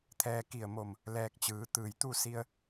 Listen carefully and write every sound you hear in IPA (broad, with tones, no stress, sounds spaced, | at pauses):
t̪ʰ ɛː˧ k i˧˩ ə̯ m o˧˩ m | l ɛː˧ k̚ t͡ɕ ɯː˩˧ t̪ ɯː˧˩ j t̪ u˥˨ s i˧ ə̯